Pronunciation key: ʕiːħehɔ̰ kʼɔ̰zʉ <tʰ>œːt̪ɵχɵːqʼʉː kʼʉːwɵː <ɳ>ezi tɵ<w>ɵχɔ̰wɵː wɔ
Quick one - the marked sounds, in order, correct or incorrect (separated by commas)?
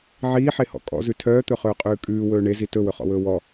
correct, correct, correct